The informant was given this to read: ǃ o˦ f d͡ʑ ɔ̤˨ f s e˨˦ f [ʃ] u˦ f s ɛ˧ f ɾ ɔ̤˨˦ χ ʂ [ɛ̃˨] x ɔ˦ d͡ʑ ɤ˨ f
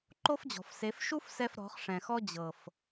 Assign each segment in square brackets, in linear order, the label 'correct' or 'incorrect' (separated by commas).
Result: correct, correct